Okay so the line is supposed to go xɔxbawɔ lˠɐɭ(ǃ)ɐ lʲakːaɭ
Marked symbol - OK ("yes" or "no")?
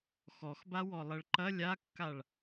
yes